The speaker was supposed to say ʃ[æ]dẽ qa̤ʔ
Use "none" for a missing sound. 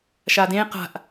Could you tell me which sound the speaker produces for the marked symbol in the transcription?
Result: a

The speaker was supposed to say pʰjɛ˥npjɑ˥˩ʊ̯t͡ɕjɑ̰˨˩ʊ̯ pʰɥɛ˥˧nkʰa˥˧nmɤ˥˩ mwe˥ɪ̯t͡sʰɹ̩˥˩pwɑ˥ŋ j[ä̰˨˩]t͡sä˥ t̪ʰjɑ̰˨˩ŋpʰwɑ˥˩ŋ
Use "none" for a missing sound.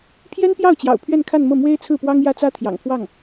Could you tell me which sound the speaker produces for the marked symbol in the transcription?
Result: ä˥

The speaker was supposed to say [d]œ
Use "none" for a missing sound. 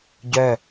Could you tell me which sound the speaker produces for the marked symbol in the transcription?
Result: ɟ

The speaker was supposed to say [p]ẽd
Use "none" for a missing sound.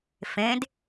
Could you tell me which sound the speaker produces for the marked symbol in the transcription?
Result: f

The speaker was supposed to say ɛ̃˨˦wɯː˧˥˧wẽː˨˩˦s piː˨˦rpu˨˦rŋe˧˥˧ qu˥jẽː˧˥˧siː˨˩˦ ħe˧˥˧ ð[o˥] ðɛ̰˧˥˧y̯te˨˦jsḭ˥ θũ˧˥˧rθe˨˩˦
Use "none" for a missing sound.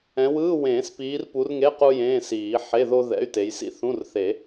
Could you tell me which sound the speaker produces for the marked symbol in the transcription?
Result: o˥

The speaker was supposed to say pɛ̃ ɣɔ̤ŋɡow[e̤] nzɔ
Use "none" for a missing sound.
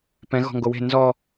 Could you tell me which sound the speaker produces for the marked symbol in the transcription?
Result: e̤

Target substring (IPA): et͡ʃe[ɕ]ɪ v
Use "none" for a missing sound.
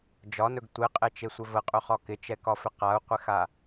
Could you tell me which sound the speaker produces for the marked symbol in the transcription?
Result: sʷ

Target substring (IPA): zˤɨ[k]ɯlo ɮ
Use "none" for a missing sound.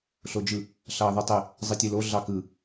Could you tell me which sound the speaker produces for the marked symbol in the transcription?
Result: tʲ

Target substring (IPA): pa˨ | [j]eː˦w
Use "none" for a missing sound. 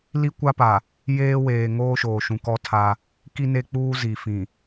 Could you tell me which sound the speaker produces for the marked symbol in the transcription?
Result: j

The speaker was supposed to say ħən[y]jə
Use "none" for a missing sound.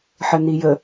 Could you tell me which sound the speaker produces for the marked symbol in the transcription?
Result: i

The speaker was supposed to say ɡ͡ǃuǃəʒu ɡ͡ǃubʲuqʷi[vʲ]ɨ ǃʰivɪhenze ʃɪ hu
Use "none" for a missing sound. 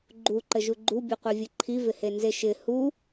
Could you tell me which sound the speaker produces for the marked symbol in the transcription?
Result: vʲ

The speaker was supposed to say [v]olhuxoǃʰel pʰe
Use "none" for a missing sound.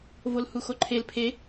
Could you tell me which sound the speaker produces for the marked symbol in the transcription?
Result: v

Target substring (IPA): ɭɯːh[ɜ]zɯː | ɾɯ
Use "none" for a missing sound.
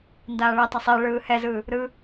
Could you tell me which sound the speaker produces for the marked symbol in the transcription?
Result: ɛ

